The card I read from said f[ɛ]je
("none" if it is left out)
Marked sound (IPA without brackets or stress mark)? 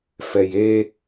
ɛ